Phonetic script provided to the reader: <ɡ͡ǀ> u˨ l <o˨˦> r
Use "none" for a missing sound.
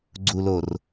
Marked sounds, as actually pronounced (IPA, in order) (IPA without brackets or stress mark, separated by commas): ɡ͡ǀ, o˨